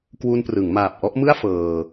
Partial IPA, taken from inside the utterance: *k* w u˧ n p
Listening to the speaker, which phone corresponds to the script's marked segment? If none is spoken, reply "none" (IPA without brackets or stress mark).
k